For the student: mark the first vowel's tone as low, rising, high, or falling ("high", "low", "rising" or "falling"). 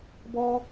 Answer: high